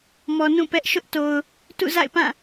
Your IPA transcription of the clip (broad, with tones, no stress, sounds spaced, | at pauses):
m ɔ˨ n ũ˦˨ p ɛ˦ ʔ ʃ ʊ˦ ʔ t o˨ ʊ̯ | t ṵ˦˨ z a̰˦˨ ɪ̯ p ã˦˨